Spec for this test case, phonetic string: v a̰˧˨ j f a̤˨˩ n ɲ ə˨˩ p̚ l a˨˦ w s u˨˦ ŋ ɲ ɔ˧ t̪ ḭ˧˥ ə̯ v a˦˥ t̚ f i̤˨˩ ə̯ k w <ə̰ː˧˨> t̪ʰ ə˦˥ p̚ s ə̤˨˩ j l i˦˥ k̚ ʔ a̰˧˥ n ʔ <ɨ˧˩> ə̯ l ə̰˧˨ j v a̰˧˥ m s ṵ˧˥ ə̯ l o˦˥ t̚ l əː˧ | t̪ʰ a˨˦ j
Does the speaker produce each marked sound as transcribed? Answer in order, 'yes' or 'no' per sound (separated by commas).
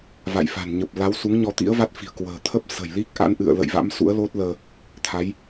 no, no